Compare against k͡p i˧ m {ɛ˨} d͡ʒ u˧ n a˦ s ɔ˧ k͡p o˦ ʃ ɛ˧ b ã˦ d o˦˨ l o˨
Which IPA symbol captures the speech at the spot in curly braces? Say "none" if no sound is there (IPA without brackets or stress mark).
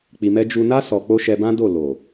ɛ˦